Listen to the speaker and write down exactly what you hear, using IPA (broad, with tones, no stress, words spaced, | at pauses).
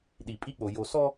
ɗi˨pʼi˦k͡po˨ jo˨ sɔ˦